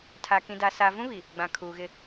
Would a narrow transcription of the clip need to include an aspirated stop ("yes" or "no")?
yes